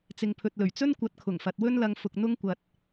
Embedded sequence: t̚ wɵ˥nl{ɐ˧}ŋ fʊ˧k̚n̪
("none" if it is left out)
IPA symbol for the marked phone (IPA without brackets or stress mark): ɐ˧